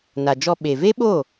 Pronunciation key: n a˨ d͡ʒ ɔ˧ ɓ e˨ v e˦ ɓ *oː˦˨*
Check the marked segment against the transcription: correct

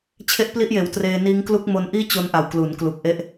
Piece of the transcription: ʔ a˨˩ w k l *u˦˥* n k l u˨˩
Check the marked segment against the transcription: incorrect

